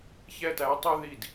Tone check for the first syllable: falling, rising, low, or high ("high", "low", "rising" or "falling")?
high